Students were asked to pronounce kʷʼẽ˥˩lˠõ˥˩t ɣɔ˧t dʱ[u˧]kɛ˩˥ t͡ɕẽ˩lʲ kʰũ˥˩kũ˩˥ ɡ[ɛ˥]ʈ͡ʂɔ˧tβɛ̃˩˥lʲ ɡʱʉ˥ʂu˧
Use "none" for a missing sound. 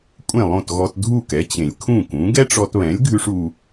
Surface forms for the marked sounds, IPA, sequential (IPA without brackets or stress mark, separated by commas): u˥˩, ɛ˥